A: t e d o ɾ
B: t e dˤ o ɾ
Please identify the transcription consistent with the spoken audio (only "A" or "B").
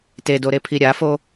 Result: A